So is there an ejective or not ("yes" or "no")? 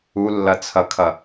no